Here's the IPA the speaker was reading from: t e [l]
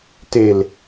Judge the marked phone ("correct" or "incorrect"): correct